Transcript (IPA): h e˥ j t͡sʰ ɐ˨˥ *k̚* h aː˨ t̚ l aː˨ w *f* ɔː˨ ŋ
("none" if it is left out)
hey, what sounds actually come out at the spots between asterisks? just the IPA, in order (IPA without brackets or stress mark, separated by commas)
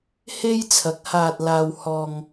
k̚, h